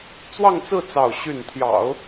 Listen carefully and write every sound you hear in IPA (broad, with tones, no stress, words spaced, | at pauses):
t͡swɑ˥˧ŋt͡sɹ̩˥˧ t͡sɑ˥˧ʊ̯ɕy˥˩n t̪ʰjɑ̰˨˩˦ʊ̯